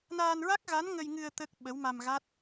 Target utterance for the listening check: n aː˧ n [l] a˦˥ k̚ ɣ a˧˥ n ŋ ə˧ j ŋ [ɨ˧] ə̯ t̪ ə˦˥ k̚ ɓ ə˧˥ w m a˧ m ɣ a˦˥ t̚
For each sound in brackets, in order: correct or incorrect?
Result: incorrect: ɹ, correct

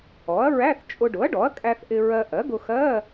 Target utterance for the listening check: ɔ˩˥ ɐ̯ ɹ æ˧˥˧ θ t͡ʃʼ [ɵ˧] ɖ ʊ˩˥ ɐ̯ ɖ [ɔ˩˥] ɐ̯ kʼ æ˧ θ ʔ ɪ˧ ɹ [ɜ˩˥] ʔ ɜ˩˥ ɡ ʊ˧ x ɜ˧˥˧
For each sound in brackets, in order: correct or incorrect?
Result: incorrect: ʊ˧, correct, incorrect: ɜ˧

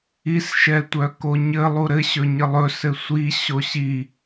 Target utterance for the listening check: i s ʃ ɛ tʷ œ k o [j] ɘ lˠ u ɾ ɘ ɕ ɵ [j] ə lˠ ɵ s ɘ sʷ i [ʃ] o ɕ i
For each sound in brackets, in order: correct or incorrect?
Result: incorrect: ɲ, incorrect: ɲ, incorrect: ɕ

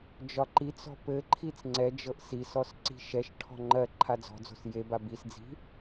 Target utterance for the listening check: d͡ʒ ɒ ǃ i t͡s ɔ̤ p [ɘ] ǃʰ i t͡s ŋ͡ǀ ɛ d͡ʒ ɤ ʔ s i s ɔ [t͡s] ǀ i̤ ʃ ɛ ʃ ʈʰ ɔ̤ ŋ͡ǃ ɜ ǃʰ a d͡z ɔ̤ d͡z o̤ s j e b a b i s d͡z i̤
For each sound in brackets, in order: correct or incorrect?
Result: correct, incorrect: s

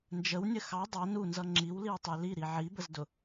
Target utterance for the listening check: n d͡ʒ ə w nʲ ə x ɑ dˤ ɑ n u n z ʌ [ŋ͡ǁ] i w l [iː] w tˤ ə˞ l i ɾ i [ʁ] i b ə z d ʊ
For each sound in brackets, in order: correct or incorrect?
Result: correct, incorrect: i, incorrect: ʕ

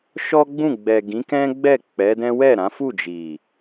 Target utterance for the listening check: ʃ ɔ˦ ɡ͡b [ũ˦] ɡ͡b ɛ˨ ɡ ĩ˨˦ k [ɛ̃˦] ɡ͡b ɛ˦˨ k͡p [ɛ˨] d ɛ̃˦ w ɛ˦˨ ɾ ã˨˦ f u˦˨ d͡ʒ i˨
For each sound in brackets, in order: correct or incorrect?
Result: incorrect: ũ˦˨, correct, incorrect: ɛ˨˦

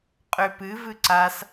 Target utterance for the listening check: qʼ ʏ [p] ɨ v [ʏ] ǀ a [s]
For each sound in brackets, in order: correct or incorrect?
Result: correct, incorrect: ɨ, correct

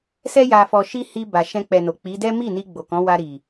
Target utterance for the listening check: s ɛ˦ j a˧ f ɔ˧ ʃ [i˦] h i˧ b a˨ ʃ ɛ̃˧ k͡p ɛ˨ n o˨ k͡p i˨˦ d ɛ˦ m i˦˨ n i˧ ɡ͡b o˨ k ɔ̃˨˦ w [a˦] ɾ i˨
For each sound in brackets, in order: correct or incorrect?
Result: correct, incorrect: a˧

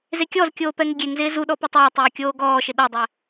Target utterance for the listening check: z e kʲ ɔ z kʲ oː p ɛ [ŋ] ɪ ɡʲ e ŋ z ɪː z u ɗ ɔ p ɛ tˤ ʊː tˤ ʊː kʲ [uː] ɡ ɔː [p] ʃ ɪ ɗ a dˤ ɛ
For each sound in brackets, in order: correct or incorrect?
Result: correct, incorrect: oː, incorrect: none

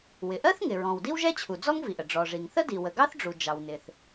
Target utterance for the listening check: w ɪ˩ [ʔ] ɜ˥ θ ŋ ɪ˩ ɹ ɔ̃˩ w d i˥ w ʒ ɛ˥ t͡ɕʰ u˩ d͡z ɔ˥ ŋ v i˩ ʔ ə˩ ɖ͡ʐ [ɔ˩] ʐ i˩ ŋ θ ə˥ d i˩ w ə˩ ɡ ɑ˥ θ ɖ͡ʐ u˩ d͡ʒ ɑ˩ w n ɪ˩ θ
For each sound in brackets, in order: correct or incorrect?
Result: correct, correct

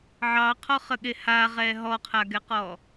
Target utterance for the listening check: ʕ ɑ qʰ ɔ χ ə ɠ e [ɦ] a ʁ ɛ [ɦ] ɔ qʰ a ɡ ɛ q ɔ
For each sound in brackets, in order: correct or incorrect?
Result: incorrect: h, correct

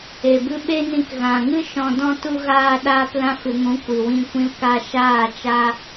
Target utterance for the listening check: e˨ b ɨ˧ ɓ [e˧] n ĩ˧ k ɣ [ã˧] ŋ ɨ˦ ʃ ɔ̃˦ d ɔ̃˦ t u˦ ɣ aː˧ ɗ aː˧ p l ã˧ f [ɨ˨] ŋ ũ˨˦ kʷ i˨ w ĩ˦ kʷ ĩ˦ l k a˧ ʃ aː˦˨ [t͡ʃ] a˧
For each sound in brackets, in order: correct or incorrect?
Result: incorrect: e˦, incorrect: ã˨, correct, correct

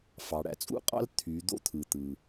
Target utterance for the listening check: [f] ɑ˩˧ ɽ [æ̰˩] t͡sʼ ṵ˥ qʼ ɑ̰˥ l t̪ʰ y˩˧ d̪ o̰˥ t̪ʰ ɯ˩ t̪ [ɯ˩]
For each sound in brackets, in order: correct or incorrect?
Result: correct, correct, correct

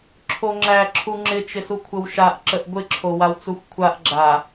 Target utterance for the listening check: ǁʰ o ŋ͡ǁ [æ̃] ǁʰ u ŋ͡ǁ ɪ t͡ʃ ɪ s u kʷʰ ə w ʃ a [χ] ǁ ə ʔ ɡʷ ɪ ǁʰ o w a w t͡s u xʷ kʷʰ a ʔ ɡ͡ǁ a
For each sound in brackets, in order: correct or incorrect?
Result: incorrect: æ, incorrect: ʔ

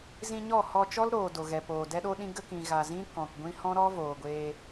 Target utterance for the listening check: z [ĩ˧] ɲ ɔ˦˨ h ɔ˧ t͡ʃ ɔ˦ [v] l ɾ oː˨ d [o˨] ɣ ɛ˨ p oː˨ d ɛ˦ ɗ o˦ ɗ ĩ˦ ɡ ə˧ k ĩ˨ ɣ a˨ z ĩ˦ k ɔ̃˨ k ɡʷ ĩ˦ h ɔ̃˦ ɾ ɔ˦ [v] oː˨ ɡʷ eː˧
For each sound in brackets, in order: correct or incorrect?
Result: correct, incorrect: none, correct, correct

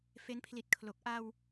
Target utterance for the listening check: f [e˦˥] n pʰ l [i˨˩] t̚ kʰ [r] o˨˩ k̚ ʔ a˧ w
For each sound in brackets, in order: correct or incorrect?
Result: correct, correct, incorrect: l

